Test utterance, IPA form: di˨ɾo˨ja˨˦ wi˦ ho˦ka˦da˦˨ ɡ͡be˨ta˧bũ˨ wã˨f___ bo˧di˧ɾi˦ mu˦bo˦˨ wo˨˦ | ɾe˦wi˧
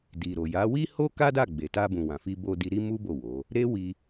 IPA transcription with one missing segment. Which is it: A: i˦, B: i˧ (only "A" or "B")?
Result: B